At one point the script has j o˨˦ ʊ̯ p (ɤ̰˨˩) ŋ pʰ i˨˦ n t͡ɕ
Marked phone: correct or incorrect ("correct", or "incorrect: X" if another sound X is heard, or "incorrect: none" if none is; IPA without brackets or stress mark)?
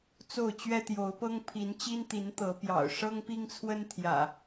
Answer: incorrect: ɤ˦